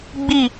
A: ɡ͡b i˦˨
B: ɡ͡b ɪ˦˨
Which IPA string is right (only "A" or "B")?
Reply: A